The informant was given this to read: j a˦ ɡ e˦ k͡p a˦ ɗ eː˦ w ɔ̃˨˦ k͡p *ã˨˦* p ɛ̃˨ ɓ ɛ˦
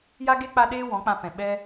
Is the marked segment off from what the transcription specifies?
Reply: yes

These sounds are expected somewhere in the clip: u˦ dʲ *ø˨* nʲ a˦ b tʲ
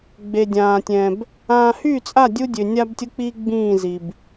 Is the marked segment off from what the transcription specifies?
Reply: no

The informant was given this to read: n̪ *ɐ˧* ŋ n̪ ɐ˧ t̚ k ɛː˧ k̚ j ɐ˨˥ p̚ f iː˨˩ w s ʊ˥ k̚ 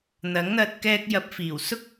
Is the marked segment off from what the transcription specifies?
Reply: yes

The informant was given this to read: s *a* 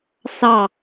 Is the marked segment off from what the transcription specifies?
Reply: yes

